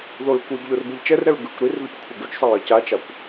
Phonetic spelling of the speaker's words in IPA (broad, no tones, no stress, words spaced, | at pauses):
ðoɹkʷiɡʎor bɯʎt͡ʃɛrɾɛɹ ɡɯkʷ ɾir ðuckʷʰeɡut͡ʃsˤʌɹ ʌcat͡ʃakʷ